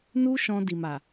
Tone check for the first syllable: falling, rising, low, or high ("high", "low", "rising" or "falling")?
high